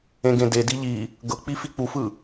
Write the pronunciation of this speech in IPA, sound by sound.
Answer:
ẽɡẽdedi ʎi | ɡɤk͡pi fik͡pufɯ

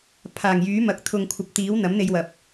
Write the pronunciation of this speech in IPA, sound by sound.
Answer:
pʰaː˨˩ŋjyː˨˥ mɐ˨k̚ t̪ʰʊ˨ŋkʷʰɐ˨˥p̚t̪iː˨˥w n̪ɐ˨˥mn̪e˧jwɐ˨p̚

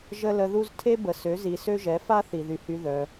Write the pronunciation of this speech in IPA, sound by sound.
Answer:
ʒə˦lə˧ðu˦z tʰe˦bə˨ sø˨˦zi˨sø˦ ʒɛ˨˦fa˦ θi˨ðy˨hy˧ ðœ˧

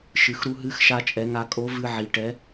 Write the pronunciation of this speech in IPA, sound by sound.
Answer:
ʃɨ˩xɾu˧ ɦɨ˧˥xʃa˧ t͡ʃʼɛ˩˧ŋa˧ kʼo˧˥vɨ˧ ʕi˩ʈɛ˩˧

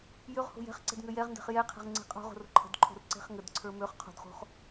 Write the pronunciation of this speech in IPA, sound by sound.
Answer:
jøʁ ho̤jɛ̤χǀɛ̤d ŋøjɛʁndɛ̤χ jɛqʰɛ̤ʁ ŋ͡ǀe̤qʼo̤ʁo̤r ǃʰə̤dǃʰo̤r ǀe̤χŋədǀʰə˞ møχ qʰo̤dχo̤χ

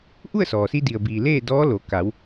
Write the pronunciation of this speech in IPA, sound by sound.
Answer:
ʔu˥˨ə̯sɔː˩si˧ di˩ə̯biː˩ leː˥˨dɔː˧˥ lo˩˧ ka˩˧w

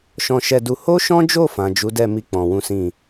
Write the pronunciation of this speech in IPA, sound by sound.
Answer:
ʃɔ̃˧ʃɛ˧du˧ ho˦ʃɔ̃˦d͡ʒo˦˨fã˨ d͡ʒu˨˦dɛ˦˨mi˧ k͡pɔ̃˧ wũ˦sĩ˦˨

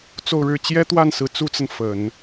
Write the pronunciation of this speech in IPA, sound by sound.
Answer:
t͡so˥˩ʊ̯ɻɻ̩˥ t͡ɕjɛ˥t̪wa˥˩n sɹ̩˧˥t͡su˥t͡sə˨n fə˨˩˦n

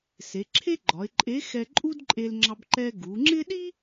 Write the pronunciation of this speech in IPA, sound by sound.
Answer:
se˩˧ǁʰe˥ɡ͡ǃɒ˩˧ɪ̯ǃʼe˧˥ xɛ˧ǃʼu˥dǃʼe˧lŋ͡ǁɑ˧b ǃɛ˧ɡu˩˧ŋ͡ǁɪ˥ ɗi˥

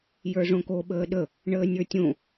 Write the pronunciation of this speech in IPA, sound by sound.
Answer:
jə˞ʐõko ɓəːɗə | ɳəːnʲə˞tʲõ

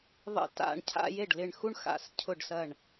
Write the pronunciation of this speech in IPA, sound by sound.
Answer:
ðˤə̰˥˩ ta̰˧˩ɳ cʰa̰˥˧je˥˩ɖlɪ˧˩ɳ xu˥˧ɳxa̰˧˩scʰʊ˧˩ɖsɐ˧˩ɳ

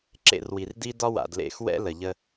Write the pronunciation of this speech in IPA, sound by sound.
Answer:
ǁḛ˦˨rwi˨rdi˦ dɒ˦wa̰˨d lḛ˦˨x wɛ̰˦ lə˨ʎə˦

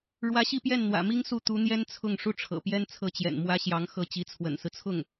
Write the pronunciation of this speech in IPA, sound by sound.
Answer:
ɻwä˧˥ɕi˥˧pjɛ˥˩nn̪wä̰˨˩ mi˥ŋsu˥˩t̪u˧˥n̪jɛ˥n t͡sʰʊ˥˩ŋ ʂu˥ʈ͡ʂʰɤ̰˨˩pjɛ˥nt͡sʰɤ˥˩ t͡ɕjɛ̰˨˩nmwä˥ɕjɑ˧˥ŋ xɤ˥˩ t͡ɕi˧˥t͡sʰwə̰˨˩nsɹ̩˦t͡sʰʊ˥˩ŋ

